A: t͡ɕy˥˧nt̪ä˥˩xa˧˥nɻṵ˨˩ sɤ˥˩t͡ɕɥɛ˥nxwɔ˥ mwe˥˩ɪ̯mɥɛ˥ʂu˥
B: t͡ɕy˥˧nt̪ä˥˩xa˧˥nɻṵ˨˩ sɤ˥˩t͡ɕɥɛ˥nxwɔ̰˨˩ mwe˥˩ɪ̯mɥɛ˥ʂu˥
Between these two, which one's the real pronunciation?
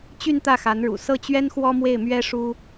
A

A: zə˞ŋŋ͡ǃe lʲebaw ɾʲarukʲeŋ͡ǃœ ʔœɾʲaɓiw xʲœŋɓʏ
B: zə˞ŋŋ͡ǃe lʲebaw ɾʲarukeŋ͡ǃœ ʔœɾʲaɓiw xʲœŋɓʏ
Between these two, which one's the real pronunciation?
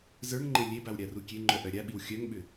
A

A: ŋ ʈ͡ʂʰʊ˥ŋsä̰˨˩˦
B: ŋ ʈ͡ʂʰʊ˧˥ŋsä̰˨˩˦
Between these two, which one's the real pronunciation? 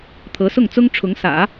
B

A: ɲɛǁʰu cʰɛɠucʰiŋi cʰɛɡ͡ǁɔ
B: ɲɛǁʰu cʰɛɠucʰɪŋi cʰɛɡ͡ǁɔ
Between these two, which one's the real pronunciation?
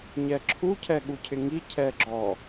B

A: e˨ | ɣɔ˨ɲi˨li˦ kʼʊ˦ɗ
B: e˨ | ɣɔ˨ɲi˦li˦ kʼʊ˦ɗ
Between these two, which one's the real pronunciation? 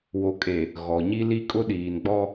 B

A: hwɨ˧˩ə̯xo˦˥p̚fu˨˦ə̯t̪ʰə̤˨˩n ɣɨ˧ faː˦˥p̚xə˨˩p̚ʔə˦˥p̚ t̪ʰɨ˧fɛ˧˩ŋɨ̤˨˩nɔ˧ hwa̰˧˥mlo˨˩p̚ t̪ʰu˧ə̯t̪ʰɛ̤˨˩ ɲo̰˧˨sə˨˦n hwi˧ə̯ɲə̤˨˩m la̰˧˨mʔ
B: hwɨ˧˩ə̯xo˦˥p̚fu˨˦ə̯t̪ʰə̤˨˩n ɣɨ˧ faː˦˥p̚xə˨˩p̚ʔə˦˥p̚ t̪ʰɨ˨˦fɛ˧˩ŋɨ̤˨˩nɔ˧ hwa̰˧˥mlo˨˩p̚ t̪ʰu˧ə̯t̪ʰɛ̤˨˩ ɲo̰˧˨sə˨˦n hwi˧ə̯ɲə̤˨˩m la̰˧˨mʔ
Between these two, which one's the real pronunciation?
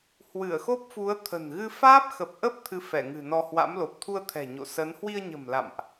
A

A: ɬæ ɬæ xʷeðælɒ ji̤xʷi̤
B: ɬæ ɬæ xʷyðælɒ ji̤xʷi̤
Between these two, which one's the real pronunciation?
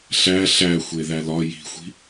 A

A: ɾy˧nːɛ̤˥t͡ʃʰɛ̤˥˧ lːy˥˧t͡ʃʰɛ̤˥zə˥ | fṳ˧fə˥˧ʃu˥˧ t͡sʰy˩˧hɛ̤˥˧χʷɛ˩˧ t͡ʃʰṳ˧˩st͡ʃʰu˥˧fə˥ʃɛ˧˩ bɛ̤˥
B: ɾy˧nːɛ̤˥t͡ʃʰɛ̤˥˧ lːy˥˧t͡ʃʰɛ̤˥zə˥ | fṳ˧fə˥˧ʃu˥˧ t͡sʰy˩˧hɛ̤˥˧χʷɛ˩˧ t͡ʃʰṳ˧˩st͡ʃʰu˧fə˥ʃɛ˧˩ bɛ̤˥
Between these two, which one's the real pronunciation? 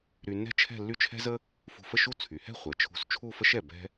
A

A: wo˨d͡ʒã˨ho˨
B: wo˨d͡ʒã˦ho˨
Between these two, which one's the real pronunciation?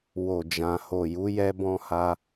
A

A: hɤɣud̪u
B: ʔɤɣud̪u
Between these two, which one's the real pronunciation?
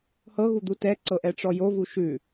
A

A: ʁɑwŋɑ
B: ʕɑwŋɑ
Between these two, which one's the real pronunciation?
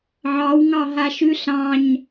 B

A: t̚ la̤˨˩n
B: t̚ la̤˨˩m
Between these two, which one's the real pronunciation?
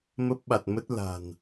A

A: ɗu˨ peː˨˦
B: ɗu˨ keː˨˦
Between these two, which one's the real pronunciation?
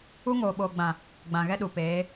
A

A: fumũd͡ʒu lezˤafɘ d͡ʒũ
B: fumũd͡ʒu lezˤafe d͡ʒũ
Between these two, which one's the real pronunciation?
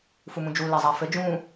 A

